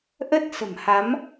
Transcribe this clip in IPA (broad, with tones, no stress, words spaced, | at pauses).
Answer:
ʔə˦˥t̚sə̤˨˩m ha˨˦m